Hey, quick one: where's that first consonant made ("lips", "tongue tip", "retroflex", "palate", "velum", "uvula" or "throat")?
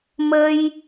lips